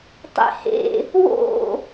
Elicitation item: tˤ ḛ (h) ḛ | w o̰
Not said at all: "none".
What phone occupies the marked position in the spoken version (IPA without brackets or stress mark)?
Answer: h